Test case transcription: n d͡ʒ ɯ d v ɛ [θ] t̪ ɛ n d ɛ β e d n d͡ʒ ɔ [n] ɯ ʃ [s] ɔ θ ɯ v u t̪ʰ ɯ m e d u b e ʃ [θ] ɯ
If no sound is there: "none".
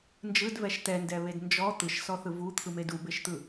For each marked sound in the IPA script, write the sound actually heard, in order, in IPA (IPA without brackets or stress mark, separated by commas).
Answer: ʃ, t̪, s, t̪